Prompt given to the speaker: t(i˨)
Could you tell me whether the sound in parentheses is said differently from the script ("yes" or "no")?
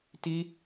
yes